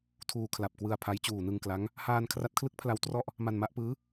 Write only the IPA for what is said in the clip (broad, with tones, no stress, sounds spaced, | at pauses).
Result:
tʰ uː˧ kʰ l a˨˩ p̚ k w ɯ˧ a̯ pʰ a˦˥ j t͡ɕ uː˨˩ n ɯ˧ ŋ k l a˦˥ ŋ | h aː˧ n kʰ r a˦˥ t̚ kʰ l ɯ˦˥ k̚ pʰ l a˧ w t r ɔ˥˩ ʔ | m a˧ n m a˦˥ ʔ p ɯː˦˥